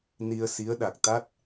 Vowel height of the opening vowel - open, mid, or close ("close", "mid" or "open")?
close